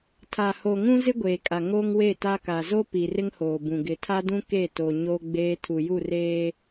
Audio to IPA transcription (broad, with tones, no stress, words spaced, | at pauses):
tʰa˨ho˨ ŋũ˦zɪ˦ɡʷeː˨kʼa˨ ŋo˦ŋwe˦˨ta˦ka˨ zo˦pi˨r ɪ˦ŋhoː˨ bũ˨ ɡɪ˨tʰa˦dũ˦ ke˦˨to˨ ɲo˦ɡ͡beː˦ tʰu˨ju˦˨reː˦